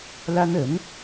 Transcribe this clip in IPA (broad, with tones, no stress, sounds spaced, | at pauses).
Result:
l a˥ n ə˧˥ n